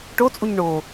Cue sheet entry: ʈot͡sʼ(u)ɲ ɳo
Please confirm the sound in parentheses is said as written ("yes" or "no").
yes